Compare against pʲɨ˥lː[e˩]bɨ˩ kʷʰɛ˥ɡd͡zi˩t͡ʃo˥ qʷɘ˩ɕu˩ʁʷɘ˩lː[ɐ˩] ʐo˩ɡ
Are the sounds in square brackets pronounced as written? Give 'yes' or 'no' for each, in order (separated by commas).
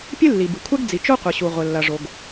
no, yes